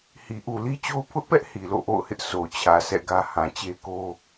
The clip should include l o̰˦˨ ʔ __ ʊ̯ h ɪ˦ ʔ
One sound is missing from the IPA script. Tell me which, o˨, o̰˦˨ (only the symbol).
o̰˦˨